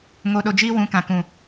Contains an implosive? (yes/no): yes